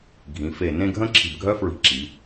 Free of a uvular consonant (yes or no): yes